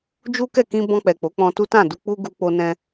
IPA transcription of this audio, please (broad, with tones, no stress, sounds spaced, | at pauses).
d͡ʒ u˦ k ɛ˦˨ k ĩ˧ b ɔ̃˧ k͡p ɛ˨ k͡p o˨˦ k͡p ɔ̃˧ t u˦ t ã˦˨ d u˧ k͡p u˦ ɡ u˧ k͡p o˧ n ɛ̃˧